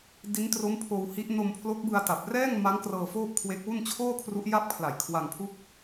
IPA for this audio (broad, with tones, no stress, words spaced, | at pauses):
di˦˥ntro˦˥m pʰoː˧whi˦˥ʔ no˧mpʰlo˦˥k̚bɯ˧a̯ ta˨˩p̚ rɛː˥˩ŋma˦˥ŋ krɤː˧ foː˥˩p̚kʰwe˦˥k̚wu˥˩n t͡ɕʰoː˥˩kʰru˦˥ʔ ja˥˩p̚ kʰla˨˩jkʰwa˧ŋpʰu˥˩k̚